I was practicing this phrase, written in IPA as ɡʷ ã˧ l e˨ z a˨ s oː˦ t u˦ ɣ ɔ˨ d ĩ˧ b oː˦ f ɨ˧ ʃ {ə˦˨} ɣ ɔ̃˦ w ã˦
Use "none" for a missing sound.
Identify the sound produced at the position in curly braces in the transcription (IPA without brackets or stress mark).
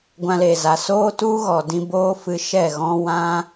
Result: ɛ˦˨